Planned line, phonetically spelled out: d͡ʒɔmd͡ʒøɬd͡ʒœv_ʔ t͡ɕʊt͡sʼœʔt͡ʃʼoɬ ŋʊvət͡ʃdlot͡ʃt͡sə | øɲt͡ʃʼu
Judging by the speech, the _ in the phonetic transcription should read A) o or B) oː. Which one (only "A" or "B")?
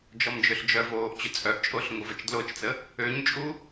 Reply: B